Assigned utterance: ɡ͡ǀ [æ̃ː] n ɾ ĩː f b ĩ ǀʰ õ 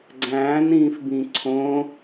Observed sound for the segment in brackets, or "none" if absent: æ̃ː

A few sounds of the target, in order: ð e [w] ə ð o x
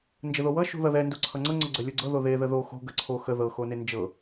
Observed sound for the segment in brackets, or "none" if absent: ð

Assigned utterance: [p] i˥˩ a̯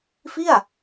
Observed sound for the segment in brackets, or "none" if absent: f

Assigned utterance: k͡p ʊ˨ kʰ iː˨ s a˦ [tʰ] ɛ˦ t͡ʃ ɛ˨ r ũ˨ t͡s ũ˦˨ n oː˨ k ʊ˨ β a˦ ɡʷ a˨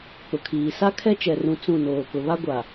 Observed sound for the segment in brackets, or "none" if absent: kʰ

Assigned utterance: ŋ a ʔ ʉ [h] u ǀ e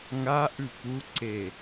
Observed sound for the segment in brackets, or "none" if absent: p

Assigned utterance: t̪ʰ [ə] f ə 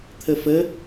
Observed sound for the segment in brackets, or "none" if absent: ə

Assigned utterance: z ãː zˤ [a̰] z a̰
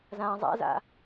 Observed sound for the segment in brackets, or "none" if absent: a̰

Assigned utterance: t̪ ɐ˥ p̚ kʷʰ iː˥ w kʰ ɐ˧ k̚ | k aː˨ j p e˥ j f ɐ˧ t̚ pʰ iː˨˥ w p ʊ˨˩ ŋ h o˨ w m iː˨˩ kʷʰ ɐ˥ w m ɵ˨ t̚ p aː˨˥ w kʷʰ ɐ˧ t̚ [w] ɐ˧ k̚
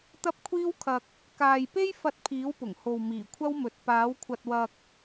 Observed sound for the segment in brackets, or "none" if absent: w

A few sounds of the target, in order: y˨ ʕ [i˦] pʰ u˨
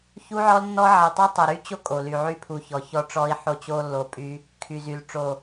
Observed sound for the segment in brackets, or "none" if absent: y˦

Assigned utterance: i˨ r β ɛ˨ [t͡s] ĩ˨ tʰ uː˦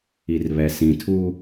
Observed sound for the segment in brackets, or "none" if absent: s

